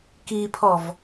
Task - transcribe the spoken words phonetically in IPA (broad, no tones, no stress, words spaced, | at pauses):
kipʰɔv